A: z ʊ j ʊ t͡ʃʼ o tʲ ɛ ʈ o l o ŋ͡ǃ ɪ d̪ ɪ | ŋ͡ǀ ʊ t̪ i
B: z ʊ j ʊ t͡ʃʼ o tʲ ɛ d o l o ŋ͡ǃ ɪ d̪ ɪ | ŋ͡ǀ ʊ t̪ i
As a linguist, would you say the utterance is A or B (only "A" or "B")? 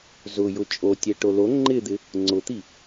A